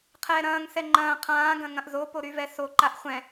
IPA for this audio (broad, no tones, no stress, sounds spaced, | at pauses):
qʰ ɛː ɾ ɐ̃ː ŋ s ɛ ŋ͡ǃ ɐ̃ː qʰ ãː ɡ ɐ̃ ŋ ɐ̃ ʔ z o p o ɾ y v ɛ s o ǃ a ʔ χʷ ɛ̃